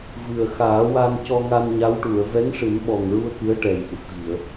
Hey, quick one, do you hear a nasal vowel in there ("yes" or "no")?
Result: no